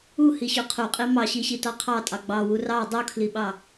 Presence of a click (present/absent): absent